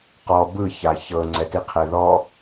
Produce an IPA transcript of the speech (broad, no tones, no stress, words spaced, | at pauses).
qɔ bɯ çaçɤ ŋ͡ǀɛtiqʰɛðɔ